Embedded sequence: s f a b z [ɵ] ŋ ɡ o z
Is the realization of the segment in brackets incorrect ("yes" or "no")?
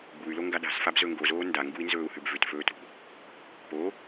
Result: no